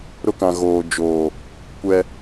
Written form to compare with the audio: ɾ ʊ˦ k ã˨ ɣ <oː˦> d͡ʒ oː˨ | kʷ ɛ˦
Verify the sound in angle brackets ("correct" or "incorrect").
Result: incorrect